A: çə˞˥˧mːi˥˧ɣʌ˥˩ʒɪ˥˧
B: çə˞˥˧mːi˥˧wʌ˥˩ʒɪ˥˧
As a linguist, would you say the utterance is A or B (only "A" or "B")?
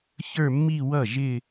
B